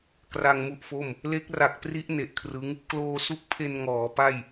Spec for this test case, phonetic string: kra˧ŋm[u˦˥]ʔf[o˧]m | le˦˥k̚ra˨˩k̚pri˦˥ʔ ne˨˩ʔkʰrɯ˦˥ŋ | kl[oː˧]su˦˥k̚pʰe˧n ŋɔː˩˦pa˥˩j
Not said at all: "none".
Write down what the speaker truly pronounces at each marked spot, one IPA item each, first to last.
u˦˥, o˥˩, oː˧

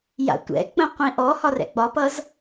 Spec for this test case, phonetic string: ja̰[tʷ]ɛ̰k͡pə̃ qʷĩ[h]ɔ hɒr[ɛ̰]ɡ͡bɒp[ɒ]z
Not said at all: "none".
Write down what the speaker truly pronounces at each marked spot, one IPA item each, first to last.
tʷ, ʔ, ɛ̰, ʌ

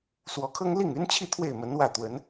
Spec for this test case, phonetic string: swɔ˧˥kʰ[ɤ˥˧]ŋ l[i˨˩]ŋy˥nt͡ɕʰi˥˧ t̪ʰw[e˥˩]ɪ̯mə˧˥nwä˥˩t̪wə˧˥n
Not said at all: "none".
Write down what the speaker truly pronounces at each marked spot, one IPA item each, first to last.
ɤ˥, i˥˩, e˥˩

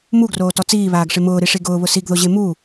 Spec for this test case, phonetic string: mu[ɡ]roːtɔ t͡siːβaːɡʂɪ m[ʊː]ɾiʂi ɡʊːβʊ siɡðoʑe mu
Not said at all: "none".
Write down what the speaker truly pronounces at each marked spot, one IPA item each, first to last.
ɡ, ʊː

